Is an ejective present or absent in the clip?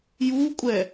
present